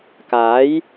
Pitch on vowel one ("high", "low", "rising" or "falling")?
rising